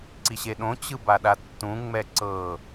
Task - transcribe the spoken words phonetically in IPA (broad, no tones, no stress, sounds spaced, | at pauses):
ǀ i ɕ e ɗ õ t͡ɕ ɯ b a ɗ a tː ũ ŋ͡m ɛ ǀ ɤ